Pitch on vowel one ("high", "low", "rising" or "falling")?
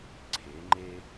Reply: rising